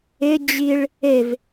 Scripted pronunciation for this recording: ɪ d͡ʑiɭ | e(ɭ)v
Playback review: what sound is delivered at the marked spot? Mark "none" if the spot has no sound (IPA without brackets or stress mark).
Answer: none